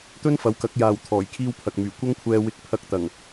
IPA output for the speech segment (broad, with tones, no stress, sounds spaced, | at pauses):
t̪ ɵ˥ n f ɐ˨˥ w k ɐ˨˥ k̚ j aː˨ w t̪ʰ ɔː˨˩ j kʰ iː˧ w pʰ ɐ˨ k̚ m yː˨˩ kʷ ɐ˥ ŋ kʷʰ ɛː˧ w ɪ˧ k̚ pʰ ɐ˧ k̚ t̪ ɐ˨˩ ŋ